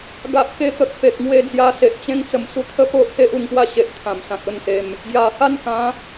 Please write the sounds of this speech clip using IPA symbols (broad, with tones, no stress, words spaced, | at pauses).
ɡa˨ʔke˧t̪ə˨k̚ pe˨k̚ŋwe˧d͡zja˧se˨ʔ t͡ɕẽ˧ŋt͡sə˨˩msu˧ t̪ʰə˥˧po˦ʔhe˦ʔ u˧ŋpwa˥˧ɕe˨ʔ t̪ʰã˨˩msã˨t̚ o˥˧nse˧m | ɡja˨˩ ha˥˧n kã˨˦